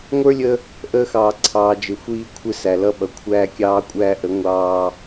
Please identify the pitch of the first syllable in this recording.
high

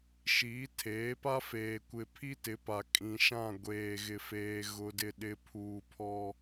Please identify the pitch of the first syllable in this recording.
rising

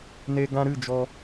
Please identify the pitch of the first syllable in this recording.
high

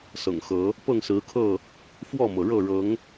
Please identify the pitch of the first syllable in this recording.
low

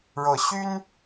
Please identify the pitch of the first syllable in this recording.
rising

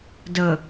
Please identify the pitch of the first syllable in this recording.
low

